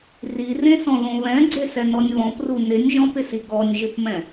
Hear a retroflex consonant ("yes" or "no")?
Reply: no